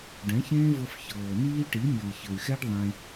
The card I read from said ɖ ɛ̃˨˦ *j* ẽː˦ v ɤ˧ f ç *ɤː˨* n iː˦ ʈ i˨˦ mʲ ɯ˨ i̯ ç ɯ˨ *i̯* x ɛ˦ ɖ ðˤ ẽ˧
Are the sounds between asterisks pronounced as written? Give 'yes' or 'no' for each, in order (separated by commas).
no, yes, no